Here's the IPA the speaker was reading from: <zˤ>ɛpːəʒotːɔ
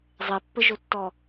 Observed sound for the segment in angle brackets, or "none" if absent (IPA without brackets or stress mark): zˤ